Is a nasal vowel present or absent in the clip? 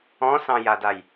present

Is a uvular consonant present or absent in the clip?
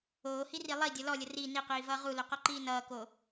present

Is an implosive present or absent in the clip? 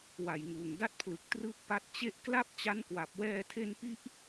absent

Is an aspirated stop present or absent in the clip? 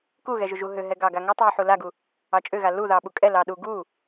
absent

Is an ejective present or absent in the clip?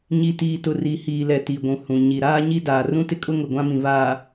present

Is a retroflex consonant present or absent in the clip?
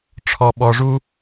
present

